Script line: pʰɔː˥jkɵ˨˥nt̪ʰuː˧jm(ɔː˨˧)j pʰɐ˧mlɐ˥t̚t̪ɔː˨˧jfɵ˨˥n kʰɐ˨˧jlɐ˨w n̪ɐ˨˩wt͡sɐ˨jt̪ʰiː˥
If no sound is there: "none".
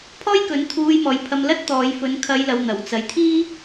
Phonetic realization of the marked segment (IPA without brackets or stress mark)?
ɔː˨˧